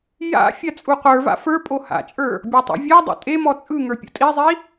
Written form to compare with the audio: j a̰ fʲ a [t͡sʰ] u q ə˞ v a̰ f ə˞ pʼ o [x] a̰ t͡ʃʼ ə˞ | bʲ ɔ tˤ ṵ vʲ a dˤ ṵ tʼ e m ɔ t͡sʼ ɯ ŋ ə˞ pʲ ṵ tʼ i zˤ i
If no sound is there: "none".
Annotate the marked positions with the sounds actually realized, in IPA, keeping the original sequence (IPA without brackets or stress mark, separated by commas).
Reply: t͡sʼ, h